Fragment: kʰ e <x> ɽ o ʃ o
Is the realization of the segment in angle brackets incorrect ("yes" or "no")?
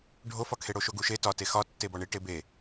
yes